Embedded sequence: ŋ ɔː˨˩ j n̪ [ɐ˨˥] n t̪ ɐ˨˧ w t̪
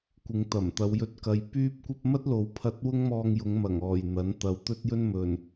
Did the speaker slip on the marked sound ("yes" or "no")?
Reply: no